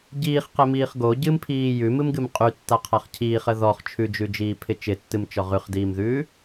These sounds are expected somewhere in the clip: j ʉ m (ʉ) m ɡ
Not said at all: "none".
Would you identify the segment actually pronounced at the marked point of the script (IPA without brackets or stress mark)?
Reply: ɨ